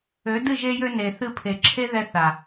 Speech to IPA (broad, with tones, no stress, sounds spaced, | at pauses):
ø˨˦ d ɨ˦˨ ʒ e˧ j ø˧ n e˨ θ ɨ˧ pʰ e˨ ǁʰ e˦ ð ɛ˧ θ a˨